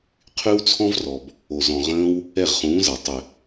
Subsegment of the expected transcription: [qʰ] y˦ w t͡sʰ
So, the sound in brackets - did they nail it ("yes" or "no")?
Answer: yes